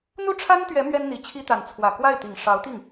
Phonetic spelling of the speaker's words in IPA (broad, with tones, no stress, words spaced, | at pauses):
n̪u˥˩ʈ͡ʂʰa˥nt̪ɥɛ˧˥ mɥɛ˥nn̪i˧˥t͡ɕʰi˥t̪a˧˥n t͡sʰwä˨˩kwa˥˩ɪ̯t̪i˨˩ŋ ʂɑ˧˥ʊ̯ t̪i˥˩ŋ